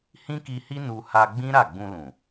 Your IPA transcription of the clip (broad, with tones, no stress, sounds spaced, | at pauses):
h ĩ˦ k i˧ h i˦ n u˧ h a˧ ɡ͡b ĩ˦ ɾ a˦˨ ɡ͡b ũ˧ l ũ˨